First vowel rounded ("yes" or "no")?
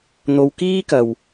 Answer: yes